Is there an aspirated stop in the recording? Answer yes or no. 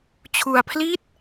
yes